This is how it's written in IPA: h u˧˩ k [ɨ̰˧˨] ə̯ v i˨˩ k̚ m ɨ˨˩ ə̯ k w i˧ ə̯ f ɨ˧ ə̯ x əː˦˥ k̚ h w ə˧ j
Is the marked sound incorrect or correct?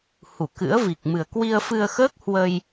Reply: incorrect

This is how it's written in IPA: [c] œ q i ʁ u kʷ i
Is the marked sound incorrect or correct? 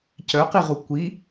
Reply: correct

